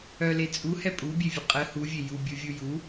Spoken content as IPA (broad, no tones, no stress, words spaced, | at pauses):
œle t͡sʼuhɛ pʼubʲevʲə qʼə huvʲe jubʲuvʲu ju